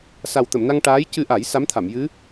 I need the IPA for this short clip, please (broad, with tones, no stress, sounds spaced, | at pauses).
s a˨˩ w t̪ ə˨˩˨ m n a˧ ŋ ʈ aː˧˥ j c ɨ˧ ʔ a˨˩˦ j s a˧˥ m t̪ʰ a˨˩˨ m j ɨ˧˥